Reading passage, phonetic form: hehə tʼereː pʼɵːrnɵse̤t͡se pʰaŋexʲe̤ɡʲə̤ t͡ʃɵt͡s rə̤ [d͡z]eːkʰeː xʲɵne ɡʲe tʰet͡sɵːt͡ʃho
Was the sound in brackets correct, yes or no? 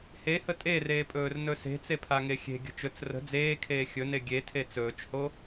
yes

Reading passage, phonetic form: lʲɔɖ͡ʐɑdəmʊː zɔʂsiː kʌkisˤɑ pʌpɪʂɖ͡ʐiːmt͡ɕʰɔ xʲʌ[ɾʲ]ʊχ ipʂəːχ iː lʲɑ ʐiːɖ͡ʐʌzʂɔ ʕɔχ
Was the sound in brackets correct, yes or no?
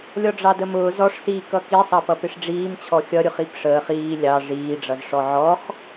yes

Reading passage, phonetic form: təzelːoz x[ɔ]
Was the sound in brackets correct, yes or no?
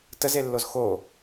no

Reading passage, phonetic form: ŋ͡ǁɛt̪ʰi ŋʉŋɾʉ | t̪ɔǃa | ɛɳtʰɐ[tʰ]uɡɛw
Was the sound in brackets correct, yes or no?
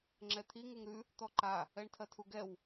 yes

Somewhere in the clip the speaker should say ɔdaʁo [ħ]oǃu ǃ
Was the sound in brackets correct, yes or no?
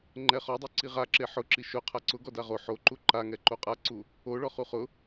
yes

